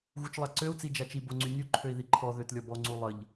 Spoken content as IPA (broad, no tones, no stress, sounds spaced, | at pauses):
ɣ u t͡ʃ lˠ a ǀ ø u̯ t͡s i d͡ʒ a t͡ʃ i b o ŋ͡ǀ y nʲ u ǃʰ ø i̯ ð i ǃʰ ɔ ð ø t lʲ ɔ b ɔ ŋ͡ǀ u lˠ ə ʎ